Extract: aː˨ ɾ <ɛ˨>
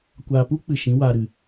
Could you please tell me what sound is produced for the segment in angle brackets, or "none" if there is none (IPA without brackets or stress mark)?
ɨ˨